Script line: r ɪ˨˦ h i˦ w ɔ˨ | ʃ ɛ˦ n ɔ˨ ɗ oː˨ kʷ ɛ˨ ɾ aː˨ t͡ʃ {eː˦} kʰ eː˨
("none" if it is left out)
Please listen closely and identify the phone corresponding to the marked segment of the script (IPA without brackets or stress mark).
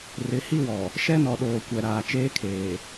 eː˦